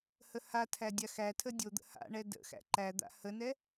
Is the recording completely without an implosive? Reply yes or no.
yes